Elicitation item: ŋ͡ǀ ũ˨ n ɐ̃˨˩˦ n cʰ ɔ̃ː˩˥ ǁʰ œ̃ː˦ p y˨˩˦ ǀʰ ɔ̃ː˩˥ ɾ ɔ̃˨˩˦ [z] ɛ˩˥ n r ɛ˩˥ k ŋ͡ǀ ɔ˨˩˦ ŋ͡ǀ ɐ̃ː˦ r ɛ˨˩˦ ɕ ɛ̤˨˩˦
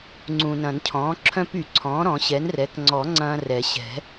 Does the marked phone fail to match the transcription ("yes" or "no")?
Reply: yes